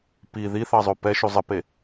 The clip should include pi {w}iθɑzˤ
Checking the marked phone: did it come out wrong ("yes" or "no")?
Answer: yes